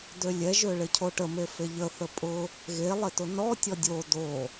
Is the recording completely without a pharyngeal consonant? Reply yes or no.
yes